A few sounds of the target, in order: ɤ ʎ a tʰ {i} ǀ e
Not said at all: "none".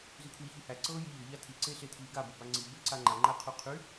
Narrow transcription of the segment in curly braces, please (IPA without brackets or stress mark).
i